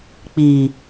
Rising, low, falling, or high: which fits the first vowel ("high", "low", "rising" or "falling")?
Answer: low